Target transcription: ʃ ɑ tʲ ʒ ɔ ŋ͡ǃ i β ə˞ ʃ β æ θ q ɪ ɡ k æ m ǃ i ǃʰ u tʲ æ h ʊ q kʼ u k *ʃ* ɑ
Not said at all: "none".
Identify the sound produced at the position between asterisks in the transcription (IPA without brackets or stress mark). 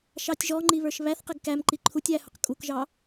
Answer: ʒ